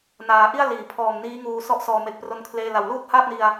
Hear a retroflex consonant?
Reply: no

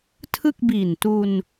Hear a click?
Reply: no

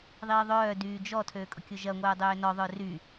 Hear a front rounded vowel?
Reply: yes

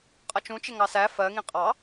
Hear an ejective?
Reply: yes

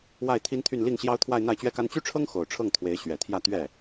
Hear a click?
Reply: no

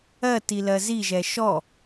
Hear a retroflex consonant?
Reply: no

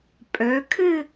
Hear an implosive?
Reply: no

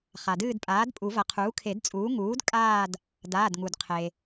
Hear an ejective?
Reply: yes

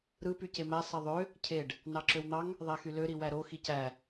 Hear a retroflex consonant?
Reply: yes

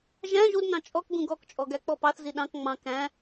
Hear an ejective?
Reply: yes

